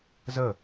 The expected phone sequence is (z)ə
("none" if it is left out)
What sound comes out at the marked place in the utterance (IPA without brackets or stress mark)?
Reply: z